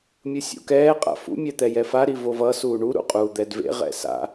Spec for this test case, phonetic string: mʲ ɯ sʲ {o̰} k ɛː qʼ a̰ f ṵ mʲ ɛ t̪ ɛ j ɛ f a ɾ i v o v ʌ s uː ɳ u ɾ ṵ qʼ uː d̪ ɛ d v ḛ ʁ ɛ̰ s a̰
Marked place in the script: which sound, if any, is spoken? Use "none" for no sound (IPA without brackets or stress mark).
ṵ